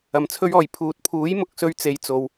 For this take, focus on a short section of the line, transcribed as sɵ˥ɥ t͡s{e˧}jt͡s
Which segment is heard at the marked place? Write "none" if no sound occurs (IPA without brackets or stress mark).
e˧